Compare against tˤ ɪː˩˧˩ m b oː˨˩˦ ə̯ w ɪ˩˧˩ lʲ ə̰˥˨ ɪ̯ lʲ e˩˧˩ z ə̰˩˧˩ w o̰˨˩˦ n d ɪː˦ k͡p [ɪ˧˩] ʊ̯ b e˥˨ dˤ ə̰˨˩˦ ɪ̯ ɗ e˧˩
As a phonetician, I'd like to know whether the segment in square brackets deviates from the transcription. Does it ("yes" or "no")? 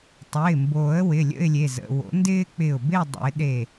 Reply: no